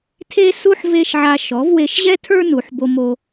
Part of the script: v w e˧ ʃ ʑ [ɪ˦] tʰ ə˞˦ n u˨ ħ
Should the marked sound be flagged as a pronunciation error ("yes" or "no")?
yes